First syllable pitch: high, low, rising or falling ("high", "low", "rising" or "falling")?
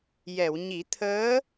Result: low